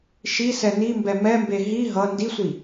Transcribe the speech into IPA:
ʃ i s ɛ n i m b ɛ m ɛ m b e ɦ i ɦ ʌ n d i sʷ i

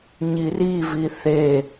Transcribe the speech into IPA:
ɲ i r i v i θ e

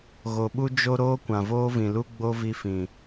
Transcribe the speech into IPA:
ɣ o˨ ɓ u˦ d͡ʒ o˦ ɾ oː˦ kʷ ã˨ v oː˦ v ĩ˨ l u˦ ɡ͡b o˦ v i˧ f ĩ˨

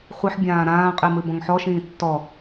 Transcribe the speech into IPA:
χʷ ɨ ħ bʲ ãː ɾ ãː qʼ i m ɨ b ɔ̃ ŋ ħ ɔ ʃ ĩː tː ɔ

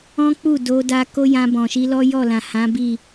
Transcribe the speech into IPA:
ɔ̃˦ k͡p u˦˨ d o˧ d a˧ k o˦ j ã˧ b ɔ̃˨ ʃ i˧ l ɔ˦ j ɔ˦˨ l ã˨ h ã˨˦ b i˦˨

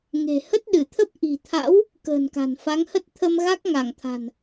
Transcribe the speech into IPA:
ŋ e̤˨˩ h ə˦˥ t̚ ɗ ɨ˧˩ t̪ʰ ə˦˥ p̚ ʔ i̤˨˩ t̪ʰ a̰˧˥ w | k ə̤ː˨˩ n k a̤˨˩ n f a˨˦ ŋ h ə˦˥ t̚ t̪ʰ ə˧ m ɣ a˦˥ k̚ ŋ a˧˩ ŋ t̪ʰ a̤˨˩ n

